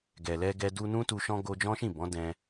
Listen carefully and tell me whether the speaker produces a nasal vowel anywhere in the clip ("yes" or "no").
yes